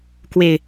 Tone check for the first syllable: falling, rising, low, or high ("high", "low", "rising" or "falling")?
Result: low